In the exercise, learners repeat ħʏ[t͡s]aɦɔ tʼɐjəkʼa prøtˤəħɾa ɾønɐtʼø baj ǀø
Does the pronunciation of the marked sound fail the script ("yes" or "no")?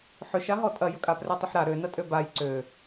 yes